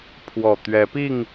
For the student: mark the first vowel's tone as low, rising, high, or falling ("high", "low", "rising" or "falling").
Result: low